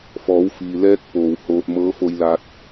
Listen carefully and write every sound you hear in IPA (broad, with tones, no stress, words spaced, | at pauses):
fɔː˩˧wfiː˩lɛː˧k̚poː˩w hoː˧t̚mɤː˧˥ fo˧jlaː˧t̚